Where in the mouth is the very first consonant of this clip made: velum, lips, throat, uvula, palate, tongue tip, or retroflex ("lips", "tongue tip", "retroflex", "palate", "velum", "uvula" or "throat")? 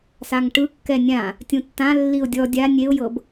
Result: tongue tip